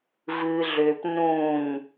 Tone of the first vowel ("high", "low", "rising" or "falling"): low